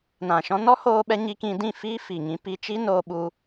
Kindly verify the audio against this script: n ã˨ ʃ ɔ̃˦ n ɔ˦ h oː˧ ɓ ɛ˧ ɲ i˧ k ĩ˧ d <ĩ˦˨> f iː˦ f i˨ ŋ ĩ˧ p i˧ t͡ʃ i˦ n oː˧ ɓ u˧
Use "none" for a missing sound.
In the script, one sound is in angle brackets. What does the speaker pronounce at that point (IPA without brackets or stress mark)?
ĩ˦˨